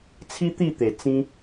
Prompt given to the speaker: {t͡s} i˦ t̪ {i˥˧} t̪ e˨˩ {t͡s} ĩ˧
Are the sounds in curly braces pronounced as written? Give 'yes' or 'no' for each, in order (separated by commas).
no, yes, yes